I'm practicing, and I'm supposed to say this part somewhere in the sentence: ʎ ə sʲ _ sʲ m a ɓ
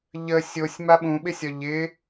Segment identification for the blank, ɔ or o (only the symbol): o